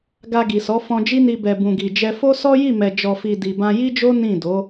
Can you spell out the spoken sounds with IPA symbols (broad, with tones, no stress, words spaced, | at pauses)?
ɡa˧ɡi˨sɔ˨˦ fɔ̃˧d͡ʒi˦ni˧ bɛ˨bũ˨ɡi˨d͡ʒɛ˧ fo˦sɔ˦ji˦˨mɛ˨ d͡ʒɔ˨fi˨ di˨bã˧ji˦d͡ʒo˦ nĩ˦˨ do˨˦